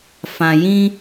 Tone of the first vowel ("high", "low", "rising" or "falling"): low